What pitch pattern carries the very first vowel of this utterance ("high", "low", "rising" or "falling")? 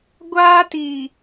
high